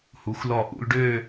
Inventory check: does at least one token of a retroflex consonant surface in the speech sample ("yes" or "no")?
yes